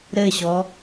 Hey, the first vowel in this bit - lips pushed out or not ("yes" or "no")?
no